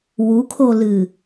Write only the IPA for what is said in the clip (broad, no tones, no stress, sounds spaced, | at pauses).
w u kʰ o l ɨ